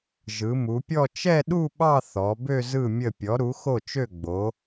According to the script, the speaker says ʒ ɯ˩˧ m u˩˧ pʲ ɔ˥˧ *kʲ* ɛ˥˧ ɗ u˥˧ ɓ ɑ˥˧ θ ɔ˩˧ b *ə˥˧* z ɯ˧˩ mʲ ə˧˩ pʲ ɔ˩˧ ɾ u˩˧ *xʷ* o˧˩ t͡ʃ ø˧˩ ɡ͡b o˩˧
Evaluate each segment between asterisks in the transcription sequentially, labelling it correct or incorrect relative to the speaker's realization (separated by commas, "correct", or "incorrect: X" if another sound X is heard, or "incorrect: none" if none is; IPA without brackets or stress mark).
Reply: incorrect: t͡ʃ, incorrect: ø˥˧, incorrect: x